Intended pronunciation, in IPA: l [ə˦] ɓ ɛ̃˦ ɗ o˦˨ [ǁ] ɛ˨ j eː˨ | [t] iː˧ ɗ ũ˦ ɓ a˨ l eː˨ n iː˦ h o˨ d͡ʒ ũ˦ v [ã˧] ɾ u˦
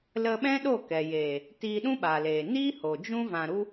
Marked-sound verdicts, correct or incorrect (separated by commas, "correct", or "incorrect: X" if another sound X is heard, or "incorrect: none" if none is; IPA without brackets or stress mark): incorrect: ə˧, incorrect: k, correct, correct